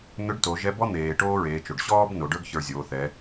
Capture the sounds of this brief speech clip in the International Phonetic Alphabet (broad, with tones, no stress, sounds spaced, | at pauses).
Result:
n̪ ʏ˧˥ ɖ t o˩˧ ʒ ɛ˧˥ b ɔ˥ n̪ eː˩ ʈ oː˥ ɹ eː˩˧ t͡ʃ o˩ ɖ ɕ ɔː˥ b n o˩˧ ɖ ə˞˥ ɡ ç ə˞˧ zʲ oː˩˧ θ ɛ˩˧